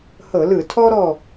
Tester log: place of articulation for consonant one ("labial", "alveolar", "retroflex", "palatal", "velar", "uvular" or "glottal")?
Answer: glottal